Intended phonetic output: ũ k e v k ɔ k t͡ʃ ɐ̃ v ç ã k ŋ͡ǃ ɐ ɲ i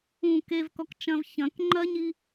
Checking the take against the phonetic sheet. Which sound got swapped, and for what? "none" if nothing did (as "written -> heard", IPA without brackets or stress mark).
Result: ã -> ɐ̃